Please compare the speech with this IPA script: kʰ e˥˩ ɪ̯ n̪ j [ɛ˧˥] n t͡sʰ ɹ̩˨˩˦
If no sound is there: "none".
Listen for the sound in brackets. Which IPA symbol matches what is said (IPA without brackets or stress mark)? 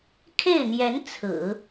ɛ˧˥